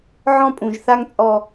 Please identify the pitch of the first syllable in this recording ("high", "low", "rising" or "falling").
high